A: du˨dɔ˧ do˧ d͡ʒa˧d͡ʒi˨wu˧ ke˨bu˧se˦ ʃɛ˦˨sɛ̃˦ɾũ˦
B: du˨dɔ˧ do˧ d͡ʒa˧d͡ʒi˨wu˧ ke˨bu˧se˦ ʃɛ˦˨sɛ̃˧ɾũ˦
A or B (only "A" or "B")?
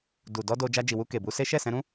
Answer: B